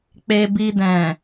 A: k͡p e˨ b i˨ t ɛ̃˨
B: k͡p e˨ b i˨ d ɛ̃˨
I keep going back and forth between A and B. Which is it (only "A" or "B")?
B